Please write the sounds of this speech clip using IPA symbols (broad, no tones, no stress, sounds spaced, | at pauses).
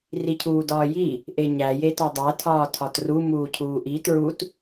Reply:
r i cʰ uː d ɒː j i | ʔ e ɲ æ j e t ɒ dˤ æ tʰ ɒː tʰ ɒ t r u m uː cʰ uː ʔ i t ɹ u t